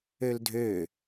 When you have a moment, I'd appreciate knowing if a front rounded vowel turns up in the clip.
yes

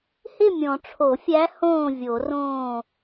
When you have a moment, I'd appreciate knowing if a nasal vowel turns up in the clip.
yes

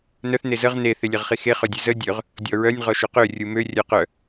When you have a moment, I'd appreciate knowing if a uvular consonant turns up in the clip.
yes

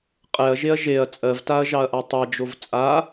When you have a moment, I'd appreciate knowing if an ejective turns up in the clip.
yes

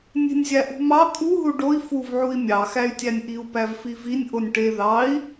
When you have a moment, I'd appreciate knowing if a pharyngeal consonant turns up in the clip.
yes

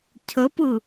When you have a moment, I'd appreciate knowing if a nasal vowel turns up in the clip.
no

